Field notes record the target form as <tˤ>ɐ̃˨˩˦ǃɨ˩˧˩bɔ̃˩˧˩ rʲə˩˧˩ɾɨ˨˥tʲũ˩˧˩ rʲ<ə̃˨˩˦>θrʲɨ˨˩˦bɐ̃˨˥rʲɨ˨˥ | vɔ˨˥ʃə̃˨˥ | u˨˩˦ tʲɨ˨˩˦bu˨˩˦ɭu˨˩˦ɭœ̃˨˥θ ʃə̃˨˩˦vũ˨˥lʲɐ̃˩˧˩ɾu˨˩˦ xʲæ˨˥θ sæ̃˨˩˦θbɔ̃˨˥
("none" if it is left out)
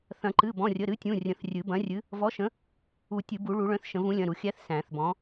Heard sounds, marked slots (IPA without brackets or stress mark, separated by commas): θ, ə̃˨˩˦